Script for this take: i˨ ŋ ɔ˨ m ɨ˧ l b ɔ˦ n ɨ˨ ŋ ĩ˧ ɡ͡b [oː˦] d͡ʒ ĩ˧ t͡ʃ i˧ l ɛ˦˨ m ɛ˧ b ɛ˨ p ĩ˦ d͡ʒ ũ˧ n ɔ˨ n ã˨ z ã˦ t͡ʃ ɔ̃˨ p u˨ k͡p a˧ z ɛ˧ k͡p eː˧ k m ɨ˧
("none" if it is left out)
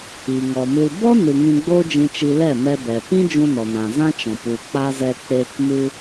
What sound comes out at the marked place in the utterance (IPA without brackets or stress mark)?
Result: oː˦